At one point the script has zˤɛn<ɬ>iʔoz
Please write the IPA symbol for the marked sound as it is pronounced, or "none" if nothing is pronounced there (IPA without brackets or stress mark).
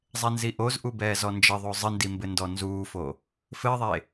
z